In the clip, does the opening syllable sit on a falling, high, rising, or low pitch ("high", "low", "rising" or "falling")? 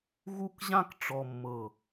falling